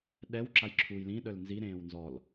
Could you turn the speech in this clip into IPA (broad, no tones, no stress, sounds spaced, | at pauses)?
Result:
ɗ ɛ w ǁ a j ǁʰ uː j l ĩ ɗ œ l n z i ɾ ẽː w n z ɔ l